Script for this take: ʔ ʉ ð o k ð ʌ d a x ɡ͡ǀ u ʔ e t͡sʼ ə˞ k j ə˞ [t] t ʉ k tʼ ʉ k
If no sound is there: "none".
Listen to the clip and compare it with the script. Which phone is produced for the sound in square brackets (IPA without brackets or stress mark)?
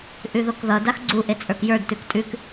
d